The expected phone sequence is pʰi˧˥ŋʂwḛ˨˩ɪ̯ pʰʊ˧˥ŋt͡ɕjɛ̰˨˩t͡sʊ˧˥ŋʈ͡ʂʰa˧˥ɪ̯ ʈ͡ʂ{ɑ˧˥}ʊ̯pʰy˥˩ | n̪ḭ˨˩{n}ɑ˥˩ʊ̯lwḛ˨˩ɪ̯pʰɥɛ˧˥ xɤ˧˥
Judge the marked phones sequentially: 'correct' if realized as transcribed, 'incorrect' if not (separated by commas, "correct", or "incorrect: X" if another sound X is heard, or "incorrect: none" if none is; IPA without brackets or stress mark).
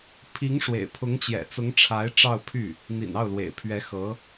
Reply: incorrect: ɑ˥˧, correct